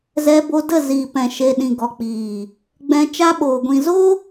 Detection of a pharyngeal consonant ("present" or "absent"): absent